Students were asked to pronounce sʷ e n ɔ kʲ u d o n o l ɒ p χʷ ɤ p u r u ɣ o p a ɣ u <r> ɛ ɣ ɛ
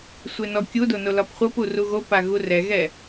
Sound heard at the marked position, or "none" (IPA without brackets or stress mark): r